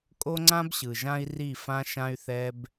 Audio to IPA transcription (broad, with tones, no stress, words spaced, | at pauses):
kʼo˦ŋ͡ǀã˦bɕɯ˨ʒã˦i̯ ri˦˨fã˦ʃã˦y̯θɛ˦b